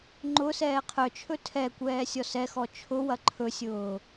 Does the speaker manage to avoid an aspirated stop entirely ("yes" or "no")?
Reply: no